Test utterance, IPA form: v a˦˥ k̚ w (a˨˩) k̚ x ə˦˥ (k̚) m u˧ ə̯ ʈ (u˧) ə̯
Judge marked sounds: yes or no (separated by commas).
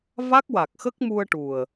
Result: yes, yes, no